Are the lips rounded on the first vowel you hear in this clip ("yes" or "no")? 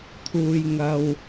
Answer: yes